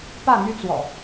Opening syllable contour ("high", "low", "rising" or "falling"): falling